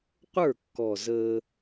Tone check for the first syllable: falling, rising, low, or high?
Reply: falling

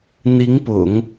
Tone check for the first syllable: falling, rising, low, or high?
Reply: rising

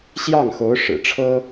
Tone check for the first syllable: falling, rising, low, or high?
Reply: falling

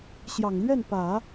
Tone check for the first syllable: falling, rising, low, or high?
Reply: low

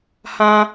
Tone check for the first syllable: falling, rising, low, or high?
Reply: high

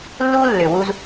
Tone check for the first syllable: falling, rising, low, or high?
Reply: high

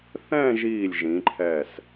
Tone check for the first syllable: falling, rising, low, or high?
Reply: falling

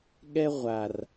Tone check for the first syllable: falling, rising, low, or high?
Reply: high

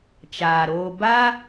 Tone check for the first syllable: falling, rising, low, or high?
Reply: low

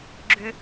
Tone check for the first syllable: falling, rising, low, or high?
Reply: high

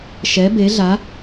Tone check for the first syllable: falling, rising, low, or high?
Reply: rising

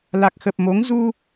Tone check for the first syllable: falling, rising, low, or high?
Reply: low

